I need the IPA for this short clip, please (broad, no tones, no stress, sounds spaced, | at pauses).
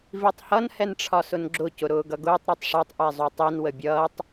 v i tˤ h ʌ n h ɛ n ʈ͡ʂʰ ɒ s ʊ n ɡ͡ǁ ʊ c ʊ ɾ ʊː ɡ ʌ ɡ ʊː tˤ ɾ ɒ tˤ ʂ ɒ tˤ ʔ ɛ zˤ u tˤ i n w ə bʲ ʌː tˤ